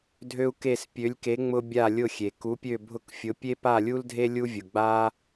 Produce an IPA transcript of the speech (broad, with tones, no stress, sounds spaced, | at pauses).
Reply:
dʱ ø˥ u̯ k e˥˧ s pʲ ø˧˥ lʲ k e˧˥ ŋ͡m ʊ˥ bʲ a˥˧ lʲ ʊ˥˧ xʲ e˨ k u˧˥ pʲ ø˥˧ bʱ ʊ˥˧ k fʲ ʊ˧˥ pʲ e˥ p a˥˧ lʲ u˥ l dʱ e˥ lʲ u˥ vʲ ʊ˨ ɡ͡b a˥